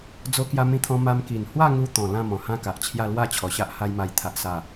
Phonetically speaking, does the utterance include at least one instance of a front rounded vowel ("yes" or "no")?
no